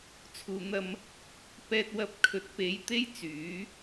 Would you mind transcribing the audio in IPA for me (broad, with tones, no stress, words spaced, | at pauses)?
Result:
t͡sʰuː˨n̪ɐ˧m | pɛː˧t̚wɐ˧p̚ kʰɵ˨˥t̚pe˨˧j t̪e˥jt͡syː˨˥